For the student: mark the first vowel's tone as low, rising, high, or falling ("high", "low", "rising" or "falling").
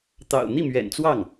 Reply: low